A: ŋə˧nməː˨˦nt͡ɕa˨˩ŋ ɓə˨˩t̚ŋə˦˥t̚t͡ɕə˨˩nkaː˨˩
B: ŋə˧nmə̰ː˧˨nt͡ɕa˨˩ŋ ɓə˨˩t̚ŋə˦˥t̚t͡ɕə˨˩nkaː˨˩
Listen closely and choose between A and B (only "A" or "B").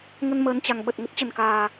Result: A